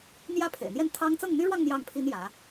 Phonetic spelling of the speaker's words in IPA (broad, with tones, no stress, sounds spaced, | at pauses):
n̪ j ä˥˩ pʰ ḛ˨˩ ɪ̯ n̪ j ɛ˥˩ n t̪ʰ ɑ˥ ŋ t͡s ɤ˥˩ ŋ n̪ y˥ ɻ w ɑ˥˧ ŋ n̪ j ɑ˥˩ ŋ pʰ i˥ n j ä˧˥